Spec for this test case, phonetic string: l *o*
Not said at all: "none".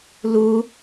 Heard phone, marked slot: u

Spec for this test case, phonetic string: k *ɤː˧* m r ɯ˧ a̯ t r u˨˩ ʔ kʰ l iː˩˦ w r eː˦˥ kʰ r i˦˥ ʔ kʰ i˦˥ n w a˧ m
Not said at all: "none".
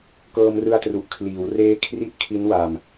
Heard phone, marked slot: ɤː˧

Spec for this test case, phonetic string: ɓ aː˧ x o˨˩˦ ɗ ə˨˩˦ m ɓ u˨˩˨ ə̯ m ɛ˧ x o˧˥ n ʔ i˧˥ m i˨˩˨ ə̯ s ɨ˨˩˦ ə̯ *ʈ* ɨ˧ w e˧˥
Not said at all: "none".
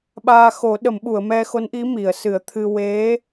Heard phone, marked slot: t̪ʰ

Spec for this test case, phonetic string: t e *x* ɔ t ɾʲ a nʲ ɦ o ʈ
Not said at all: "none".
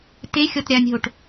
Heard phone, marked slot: xʲ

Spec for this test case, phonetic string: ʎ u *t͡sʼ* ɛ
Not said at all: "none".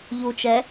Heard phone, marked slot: t͡ʃ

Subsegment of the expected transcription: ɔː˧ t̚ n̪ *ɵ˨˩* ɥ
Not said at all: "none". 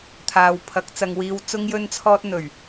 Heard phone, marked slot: ɵ˨˩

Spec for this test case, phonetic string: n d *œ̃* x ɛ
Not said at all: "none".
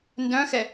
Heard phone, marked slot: œ̃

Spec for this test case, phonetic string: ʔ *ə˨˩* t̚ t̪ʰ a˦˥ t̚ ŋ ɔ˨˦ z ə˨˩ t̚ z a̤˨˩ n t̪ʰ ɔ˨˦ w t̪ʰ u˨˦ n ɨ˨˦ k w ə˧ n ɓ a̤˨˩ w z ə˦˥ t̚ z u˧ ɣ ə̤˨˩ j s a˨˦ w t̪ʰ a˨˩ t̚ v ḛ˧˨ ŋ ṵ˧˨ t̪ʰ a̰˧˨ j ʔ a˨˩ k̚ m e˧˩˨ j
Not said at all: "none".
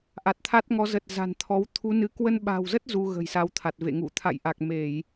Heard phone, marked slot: a˨˩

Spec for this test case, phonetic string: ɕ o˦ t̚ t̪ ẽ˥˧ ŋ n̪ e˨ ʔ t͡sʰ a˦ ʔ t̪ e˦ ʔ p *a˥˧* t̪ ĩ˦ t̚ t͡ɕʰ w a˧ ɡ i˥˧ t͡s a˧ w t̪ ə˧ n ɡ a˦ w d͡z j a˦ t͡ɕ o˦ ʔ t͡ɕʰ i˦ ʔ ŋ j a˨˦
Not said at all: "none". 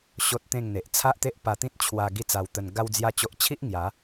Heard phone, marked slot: a˧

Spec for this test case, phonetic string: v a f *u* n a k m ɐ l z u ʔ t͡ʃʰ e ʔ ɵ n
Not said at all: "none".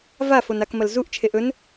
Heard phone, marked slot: o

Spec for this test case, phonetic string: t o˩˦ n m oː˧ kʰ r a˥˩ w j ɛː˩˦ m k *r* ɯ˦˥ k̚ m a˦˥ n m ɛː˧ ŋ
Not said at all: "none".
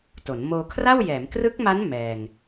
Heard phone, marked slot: r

